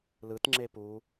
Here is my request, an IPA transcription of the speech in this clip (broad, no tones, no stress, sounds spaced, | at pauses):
l ɯ t ŋ͡ǁ e p u